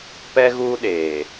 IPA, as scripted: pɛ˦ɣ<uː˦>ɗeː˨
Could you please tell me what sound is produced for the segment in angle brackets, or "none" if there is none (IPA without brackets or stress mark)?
uː˦